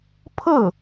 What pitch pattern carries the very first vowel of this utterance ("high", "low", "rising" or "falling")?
falling